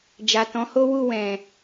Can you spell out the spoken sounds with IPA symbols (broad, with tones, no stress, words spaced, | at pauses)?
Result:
d͡ʒa˨tɔ̃˨˦ho˦wu˦˨ wɛ̃˨